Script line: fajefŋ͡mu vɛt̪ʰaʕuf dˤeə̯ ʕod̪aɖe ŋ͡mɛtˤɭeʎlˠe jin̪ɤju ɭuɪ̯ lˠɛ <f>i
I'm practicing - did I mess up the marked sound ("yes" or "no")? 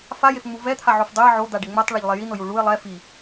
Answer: no